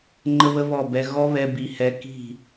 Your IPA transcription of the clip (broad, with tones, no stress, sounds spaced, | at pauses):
ŋ͡ǃ ə˦ β ə˦ β ɔ˦˨ b ɛ˧ ɣ ɔ˦ β ɛ˧ b i˧ h ɛ˦ k i̤˦˨